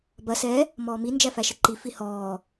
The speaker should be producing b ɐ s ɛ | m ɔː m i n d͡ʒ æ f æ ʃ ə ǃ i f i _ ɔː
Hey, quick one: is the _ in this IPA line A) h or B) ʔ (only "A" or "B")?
A